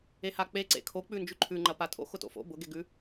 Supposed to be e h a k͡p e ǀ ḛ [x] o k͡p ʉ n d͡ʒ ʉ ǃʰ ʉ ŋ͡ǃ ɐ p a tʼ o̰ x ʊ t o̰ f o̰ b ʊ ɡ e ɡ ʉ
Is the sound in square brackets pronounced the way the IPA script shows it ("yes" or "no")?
no